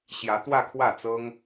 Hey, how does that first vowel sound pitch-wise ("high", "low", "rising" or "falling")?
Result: rising